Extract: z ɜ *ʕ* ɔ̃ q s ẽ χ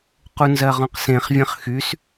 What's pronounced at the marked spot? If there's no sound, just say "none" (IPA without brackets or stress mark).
ʁ